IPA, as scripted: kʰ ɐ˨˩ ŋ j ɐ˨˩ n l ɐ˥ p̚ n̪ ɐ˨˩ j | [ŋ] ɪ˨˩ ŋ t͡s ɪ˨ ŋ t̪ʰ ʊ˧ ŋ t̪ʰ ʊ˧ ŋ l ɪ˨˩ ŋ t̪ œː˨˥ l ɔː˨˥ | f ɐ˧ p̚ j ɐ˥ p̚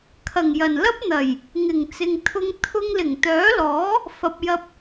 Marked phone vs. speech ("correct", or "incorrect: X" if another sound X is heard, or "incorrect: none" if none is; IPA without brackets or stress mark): correct